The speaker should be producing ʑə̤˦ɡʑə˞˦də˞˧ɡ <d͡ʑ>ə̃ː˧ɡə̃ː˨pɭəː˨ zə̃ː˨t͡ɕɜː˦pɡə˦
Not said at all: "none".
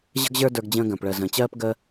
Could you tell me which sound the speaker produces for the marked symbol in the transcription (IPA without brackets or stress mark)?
d͡ʑ